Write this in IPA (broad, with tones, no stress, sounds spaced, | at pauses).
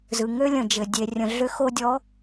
z ɯ˨ ŋ ø˦ lʲ ə̃˨ d͡ʒ ɘ˨ dʲ e˨ rʲ ə̃˨ ɮ ʏ˦ x o˦ dʲ ɔ˨˦